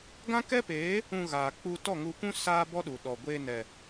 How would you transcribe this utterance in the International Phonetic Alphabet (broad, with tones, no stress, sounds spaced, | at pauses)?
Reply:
ɡ ã˦ k ɛ˦ p eː˨˦ | ũ˧ ɣ aː˨ k͡p u˧ t ɔ˦˨ ŋ u˧ kʷ ũ˦ s aː˦ b ɔ˦ ɗ u˨ ɗ ɔ˨ ɡʷ eː˧ n ɛ˨